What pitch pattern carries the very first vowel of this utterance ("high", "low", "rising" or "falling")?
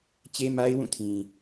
high